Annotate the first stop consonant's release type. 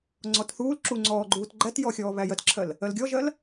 click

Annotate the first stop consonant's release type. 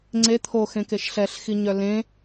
click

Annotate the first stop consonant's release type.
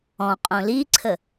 ejective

